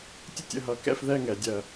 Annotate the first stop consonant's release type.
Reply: plain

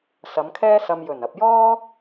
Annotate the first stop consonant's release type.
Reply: aspirated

